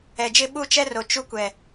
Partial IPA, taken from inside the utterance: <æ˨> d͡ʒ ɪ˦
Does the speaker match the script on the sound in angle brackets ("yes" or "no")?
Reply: no